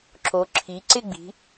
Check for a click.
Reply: present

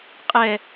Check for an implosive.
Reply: absent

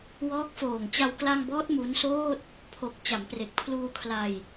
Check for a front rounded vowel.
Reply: absent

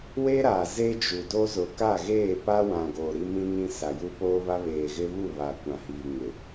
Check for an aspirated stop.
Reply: absent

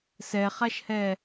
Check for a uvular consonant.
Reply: present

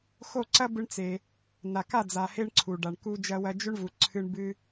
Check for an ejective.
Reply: absent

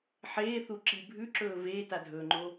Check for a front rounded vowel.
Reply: absent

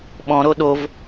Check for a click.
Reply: absent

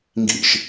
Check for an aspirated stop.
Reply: absent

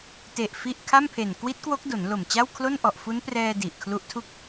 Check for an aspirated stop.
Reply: present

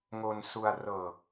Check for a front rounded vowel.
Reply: absent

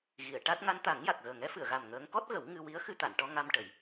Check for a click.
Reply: absent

